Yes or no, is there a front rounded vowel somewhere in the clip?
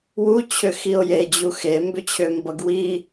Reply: yes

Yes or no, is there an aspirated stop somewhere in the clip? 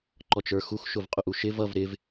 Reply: no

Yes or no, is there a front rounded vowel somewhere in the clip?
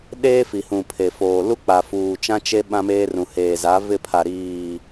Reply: no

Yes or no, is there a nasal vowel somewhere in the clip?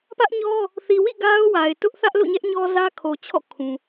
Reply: yes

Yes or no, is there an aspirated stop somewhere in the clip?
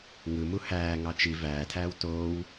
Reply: yes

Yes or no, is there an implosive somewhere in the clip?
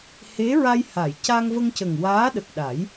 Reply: yes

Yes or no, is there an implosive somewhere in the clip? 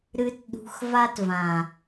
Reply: yes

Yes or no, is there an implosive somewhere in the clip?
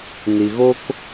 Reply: no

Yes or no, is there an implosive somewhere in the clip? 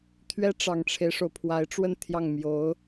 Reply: no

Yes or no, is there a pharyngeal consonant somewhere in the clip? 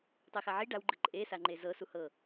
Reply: yes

